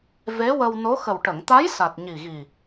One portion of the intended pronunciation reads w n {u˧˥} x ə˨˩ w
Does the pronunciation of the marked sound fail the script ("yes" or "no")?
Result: yes